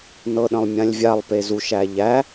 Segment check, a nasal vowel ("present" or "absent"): present